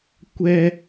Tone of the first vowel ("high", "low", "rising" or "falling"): high